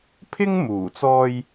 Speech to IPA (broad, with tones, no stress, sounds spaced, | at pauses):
pʰ ɪ˥ ŋ m uː˨˩ t͡s ɔː˧ j